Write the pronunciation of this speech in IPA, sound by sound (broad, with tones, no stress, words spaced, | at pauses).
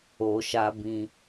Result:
o˨ʃa˧bĩ˧